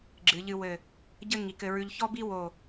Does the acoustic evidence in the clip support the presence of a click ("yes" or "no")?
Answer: yes